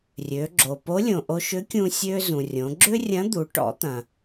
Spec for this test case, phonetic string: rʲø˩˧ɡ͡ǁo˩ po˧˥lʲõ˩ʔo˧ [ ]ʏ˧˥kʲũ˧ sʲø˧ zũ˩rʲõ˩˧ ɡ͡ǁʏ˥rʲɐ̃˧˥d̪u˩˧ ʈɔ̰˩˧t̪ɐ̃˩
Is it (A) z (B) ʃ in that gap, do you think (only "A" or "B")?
B